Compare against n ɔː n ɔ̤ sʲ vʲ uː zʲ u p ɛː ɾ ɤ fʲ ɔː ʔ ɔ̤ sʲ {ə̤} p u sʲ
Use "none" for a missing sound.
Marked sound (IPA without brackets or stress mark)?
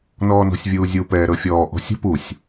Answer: ə̤